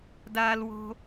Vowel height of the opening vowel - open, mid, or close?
open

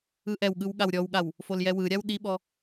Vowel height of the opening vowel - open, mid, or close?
close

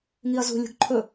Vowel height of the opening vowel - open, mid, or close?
close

